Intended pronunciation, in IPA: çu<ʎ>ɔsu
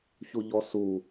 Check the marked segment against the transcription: correct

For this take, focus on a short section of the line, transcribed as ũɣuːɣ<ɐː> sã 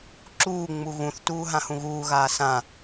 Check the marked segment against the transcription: incorrect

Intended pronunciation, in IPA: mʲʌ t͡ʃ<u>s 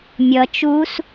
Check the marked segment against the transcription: correct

